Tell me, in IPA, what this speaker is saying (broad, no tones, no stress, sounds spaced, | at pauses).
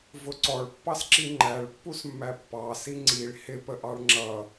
v ʊ ǀ ɔ ɭ pː ɑ s ǁ i ŋ͡ǃ æ ɭ pː u s mː æ pː ɑ s i ŋ͡ǀ i ɭ h ɪ p ə ʔ ɑ ɭ ŋ͡ǁ ʌ